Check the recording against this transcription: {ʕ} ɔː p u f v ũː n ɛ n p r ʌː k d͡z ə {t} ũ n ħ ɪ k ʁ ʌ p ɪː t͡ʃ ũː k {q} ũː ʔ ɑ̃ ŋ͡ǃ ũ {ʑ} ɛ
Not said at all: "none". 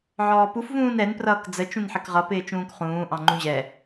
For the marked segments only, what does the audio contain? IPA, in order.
ʕ, t͡ʃ, χ, ʑ

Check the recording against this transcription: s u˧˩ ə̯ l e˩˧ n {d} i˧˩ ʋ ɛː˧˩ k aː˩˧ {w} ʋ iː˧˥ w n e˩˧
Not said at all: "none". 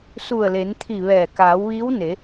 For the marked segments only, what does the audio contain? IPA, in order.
t̪ʰ, w

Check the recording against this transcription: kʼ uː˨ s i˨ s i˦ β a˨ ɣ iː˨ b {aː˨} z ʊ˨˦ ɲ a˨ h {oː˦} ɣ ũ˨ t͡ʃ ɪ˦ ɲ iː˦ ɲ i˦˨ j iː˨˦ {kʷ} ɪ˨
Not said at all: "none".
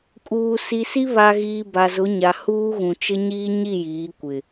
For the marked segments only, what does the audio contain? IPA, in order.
a˨, uː˦, kʷ

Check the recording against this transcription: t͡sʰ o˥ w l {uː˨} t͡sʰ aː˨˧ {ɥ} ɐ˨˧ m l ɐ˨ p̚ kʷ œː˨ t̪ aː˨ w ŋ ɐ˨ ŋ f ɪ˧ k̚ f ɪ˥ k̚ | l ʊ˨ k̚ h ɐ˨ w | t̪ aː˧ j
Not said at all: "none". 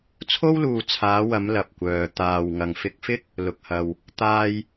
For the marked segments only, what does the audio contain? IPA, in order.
uː˨, w

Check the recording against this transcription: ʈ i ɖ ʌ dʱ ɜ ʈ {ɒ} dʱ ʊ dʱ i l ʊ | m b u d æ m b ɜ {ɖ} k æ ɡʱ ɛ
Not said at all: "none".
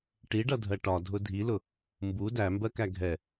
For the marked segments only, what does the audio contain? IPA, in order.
ɒ, none

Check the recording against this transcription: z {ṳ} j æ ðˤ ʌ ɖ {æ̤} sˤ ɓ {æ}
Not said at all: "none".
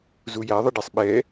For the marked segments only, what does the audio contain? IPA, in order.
u, æ, ɛ

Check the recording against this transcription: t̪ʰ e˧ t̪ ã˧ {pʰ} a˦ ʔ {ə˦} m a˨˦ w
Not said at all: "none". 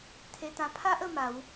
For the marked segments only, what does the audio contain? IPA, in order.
pʰ, ə˧

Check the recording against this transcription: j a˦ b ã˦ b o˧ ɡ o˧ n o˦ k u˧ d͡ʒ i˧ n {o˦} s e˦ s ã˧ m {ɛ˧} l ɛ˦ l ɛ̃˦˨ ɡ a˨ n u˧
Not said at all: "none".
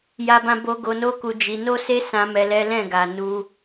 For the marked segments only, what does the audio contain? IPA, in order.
o˦, ɛ˧

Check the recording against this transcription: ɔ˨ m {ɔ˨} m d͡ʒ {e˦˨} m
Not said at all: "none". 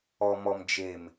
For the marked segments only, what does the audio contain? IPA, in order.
ɔ˨, e˨

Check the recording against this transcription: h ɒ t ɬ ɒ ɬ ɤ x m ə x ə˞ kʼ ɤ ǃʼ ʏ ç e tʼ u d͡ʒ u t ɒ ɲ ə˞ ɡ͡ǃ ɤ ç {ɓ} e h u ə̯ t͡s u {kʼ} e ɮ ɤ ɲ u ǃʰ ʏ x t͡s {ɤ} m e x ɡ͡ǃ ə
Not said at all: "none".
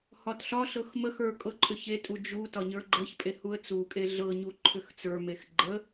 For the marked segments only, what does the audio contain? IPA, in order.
pʼ, kʼ, ə˞

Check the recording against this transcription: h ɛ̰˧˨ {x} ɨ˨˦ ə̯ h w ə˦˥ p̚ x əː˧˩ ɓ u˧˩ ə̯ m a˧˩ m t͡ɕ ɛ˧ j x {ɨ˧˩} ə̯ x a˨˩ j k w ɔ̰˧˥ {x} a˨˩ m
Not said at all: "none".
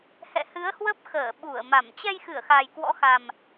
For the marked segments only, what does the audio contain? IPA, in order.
h, ɨ˧˩, x

